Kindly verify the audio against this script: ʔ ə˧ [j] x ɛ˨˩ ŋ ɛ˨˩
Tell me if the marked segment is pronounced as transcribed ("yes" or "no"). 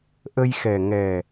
yes